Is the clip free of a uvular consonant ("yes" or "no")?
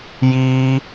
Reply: yes